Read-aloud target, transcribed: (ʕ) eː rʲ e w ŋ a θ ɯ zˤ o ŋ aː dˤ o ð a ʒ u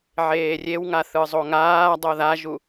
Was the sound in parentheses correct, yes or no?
yes